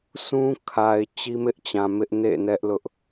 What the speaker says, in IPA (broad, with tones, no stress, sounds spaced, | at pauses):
s ũ˦ kʰ a˨ ɪ̯ t͡ɕ i˦ m ɪ˦ ʔ t͡ɕ ã˨ m ɪ˦ ʔ n ḛ˦˨ n ɛ˦ ʔ l ʊ˦ ʔ